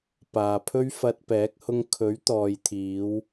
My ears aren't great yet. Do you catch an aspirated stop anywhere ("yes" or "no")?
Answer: yes